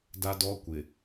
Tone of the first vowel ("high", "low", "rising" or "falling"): high